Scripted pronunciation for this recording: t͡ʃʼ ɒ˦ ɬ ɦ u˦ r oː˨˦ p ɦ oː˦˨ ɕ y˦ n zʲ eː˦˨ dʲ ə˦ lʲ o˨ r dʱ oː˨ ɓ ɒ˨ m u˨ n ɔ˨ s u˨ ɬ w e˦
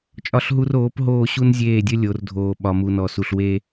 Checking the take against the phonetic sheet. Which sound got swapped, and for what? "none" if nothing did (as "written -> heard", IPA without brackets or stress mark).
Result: y˦ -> u˦